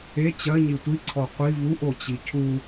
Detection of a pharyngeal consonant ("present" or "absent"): absent